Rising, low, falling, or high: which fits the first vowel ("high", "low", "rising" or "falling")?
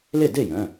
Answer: falling